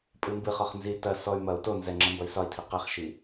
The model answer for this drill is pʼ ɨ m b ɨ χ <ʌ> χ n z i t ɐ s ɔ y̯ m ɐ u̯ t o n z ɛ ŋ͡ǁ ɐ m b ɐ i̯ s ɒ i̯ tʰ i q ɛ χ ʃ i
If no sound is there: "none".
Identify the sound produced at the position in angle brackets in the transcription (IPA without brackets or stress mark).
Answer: ɒ